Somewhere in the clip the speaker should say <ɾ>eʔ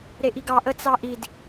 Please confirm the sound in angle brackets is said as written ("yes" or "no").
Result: yes